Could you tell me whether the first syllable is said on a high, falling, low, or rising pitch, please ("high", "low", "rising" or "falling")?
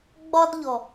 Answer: high